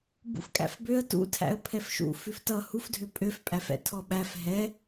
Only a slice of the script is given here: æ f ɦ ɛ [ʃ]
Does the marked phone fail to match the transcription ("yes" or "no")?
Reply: yes